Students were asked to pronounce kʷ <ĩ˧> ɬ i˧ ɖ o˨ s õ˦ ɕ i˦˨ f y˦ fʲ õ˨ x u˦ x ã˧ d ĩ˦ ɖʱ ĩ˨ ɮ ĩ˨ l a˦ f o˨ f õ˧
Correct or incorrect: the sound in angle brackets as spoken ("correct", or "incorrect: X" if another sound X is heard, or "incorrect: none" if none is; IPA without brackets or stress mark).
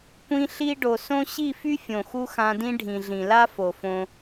correct